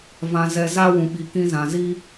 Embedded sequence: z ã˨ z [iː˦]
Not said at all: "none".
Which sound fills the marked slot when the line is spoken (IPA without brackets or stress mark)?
i˦